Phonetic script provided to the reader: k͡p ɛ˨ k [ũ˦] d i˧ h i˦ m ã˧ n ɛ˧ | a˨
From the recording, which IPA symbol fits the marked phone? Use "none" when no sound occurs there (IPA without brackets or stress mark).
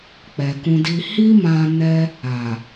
ũ˧